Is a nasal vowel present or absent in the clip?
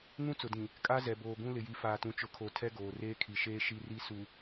present